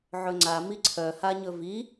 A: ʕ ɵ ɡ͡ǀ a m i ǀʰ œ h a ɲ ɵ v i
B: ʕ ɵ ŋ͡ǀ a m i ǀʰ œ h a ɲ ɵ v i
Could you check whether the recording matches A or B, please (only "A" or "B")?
B